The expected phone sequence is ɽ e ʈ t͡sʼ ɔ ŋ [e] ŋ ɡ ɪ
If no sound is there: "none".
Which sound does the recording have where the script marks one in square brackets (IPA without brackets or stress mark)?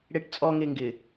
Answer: e